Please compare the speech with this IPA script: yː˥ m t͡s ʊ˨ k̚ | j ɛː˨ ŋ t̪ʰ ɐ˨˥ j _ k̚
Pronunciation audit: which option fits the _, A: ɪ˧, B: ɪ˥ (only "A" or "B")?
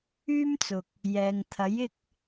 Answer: A